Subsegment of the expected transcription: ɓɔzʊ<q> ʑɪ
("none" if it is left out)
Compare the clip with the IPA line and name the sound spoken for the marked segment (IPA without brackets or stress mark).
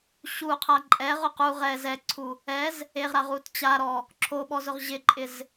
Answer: ʁ